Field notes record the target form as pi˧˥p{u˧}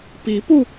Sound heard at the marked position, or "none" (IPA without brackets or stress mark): u˧